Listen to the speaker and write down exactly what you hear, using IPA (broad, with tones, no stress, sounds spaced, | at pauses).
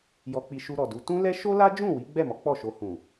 j ɔ˧ k͡p i˧ ʃ u˧ ɾ ɔ˨ d u˨˦ t ũ˦ l ɛ˦ ʃ o˦ l a˦ d͡ʒ ũ˦˨ w i˨˦ ɡ͡b ɛ˦˨ m ɔ˨˦ k͡p ɔ˦˨ ʃ o˧ h ũ˨